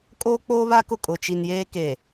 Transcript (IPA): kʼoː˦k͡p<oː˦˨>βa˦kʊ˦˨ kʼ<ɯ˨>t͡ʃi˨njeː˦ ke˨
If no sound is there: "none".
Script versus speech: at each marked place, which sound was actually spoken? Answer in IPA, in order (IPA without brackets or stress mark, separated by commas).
oː˦, ʊ˨